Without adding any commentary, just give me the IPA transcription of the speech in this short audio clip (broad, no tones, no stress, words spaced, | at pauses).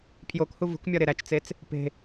pʰjokhu vṳkmʲɒ ɾeɾæt͡ʃt͡set͡s | pe̤